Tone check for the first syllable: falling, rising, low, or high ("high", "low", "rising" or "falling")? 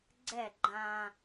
falling